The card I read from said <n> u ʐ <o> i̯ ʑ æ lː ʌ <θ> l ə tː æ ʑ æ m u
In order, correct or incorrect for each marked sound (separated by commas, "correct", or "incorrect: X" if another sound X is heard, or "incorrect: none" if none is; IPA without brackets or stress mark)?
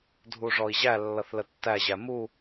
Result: incorrect: dʱ, incorrect: ɔ, correct